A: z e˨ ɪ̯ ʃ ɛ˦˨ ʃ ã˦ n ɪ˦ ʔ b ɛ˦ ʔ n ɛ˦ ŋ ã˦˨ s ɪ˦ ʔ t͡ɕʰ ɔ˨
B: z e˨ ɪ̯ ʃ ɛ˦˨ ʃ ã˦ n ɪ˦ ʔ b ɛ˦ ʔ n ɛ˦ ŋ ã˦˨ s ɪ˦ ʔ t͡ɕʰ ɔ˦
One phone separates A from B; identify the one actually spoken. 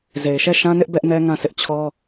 B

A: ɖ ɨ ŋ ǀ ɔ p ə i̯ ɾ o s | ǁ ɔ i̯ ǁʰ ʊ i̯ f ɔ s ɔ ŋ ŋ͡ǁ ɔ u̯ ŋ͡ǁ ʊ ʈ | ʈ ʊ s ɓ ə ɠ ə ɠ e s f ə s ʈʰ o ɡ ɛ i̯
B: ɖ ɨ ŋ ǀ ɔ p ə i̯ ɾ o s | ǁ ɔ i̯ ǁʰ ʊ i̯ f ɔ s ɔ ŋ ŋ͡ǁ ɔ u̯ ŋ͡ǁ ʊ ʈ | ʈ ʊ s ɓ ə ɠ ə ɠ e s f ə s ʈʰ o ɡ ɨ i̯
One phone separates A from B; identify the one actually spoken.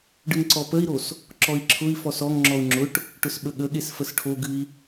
B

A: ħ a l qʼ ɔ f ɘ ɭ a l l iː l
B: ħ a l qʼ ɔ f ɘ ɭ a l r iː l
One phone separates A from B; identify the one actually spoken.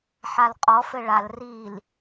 B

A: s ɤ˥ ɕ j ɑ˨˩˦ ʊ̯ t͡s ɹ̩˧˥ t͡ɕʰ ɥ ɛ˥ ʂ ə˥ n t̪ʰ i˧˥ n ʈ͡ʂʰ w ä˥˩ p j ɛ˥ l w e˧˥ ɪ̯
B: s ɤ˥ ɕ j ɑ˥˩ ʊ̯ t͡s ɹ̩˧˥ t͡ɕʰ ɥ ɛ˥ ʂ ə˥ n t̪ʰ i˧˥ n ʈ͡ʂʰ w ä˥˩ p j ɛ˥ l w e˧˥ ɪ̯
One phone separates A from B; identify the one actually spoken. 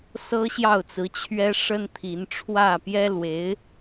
B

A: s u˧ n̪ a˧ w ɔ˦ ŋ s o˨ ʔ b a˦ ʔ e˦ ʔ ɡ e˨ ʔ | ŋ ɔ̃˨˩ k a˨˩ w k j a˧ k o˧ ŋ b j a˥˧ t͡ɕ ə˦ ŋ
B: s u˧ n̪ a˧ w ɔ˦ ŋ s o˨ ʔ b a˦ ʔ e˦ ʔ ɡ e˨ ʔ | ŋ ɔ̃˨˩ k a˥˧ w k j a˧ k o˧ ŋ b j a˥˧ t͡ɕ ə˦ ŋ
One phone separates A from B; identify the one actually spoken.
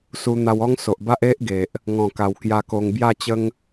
A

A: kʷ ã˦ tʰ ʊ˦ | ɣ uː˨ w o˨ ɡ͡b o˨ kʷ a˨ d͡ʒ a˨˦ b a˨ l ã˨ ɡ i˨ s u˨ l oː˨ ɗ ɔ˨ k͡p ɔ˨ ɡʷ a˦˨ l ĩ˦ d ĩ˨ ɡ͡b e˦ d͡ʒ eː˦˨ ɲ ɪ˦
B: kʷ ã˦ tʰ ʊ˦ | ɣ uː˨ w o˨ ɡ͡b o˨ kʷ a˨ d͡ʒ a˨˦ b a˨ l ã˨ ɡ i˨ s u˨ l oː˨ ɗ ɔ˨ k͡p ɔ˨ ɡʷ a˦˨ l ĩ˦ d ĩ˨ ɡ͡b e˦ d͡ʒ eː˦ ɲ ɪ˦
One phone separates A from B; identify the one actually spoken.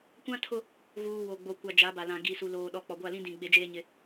B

